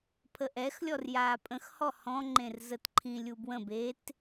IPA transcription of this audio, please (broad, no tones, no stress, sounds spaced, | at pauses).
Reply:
pʰ ə ʔ ɛ x lʲ ɔ r j aː pʼ ə̃ x h ɔ h ɔ̃ ŋ͡ǃ ẽ r z ə t ǃʰ ĩ lʲ u b w ə̃ b e t